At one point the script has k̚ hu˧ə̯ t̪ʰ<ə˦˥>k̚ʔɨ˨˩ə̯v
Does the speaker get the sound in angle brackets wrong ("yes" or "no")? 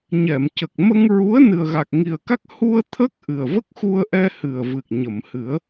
no